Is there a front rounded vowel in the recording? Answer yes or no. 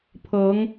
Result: no